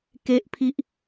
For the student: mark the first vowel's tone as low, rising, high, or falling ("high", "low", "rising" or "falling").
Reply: high